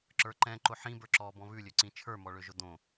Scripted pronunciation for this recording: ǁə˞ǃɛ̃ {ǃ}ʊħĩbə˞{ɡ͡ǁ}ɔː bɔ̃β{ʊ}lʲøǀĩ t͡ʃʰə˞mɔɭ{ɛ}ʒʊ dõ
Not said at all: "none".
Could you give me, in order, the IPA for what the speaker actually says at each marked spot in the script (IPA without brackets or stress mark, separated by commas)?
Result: ǃ, ǁ, ʉ, ø